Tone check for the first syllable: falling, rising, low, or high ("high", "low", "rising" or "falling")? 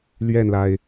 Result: falling